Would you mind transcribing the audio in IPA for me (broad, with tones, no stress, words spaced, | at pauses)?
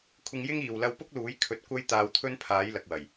kʷʰɪ˧ŋjɪ˥ŋ iː˨w lɐ˧wpʊ˥k̚luː˨˥j kʰɵ˧t̚ kʷɐ˥j t̪aː˧wt̪ʰɵ˥npʰaː˨˥j lɐ˨k̚wɐ˨˩j